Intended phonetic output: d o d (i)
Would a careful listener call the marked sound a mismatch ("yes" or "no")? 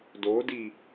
no